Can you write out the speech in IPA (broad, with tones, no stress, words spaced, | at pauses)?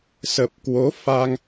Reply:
sə˨˩p̚kwo˨˦ faː˧ŋ